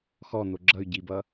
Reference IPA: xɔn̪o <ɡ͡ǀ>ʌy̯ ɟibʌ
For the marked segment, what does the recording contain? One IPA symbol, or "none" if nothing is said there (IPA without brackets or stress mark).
ɡ͡ǁ